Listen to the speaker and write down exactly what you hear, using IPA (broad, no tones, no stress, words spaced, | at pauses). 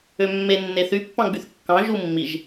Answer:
ømːe nːeθy pːɑ̃ɡ͡byθkːɑ̃ ʒumːiʒ